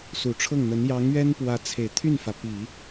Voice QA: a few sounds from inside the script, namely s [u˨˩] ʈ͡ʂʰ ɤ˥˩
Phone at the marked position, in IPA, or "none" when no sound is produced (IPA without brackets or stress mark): u˨˩